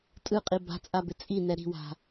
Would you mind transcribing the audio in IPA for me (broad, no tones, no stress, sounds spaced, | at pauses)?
tʼ ɯ qʼ i b a̤ t͡sʼ a b ɪ t͡sʼ i n ɛ ɾ i̤ w a̤